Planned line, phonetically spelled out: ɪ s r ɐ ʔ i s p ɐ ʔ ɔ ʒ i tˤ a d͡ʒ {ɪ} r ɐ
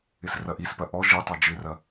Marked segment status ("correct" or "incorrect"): correct